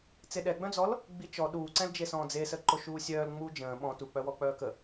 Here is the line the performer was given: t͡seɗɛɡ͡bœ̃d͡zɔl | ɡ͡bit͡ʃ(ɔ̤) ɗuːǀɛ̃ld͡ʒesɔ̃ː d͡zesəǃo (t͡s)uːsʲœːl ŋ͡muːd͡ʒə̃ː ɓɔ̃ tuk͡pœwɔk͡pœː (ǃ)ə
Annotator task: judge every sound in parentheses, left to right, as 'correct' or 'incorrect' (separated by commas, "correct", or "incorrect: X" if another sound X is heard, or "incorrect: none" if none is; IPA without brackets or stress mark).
incorrect: ɔ, incorrect: ʃ, incorrect: k